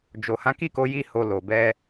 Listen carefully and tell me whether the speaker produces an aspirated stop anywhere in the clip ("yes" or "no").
no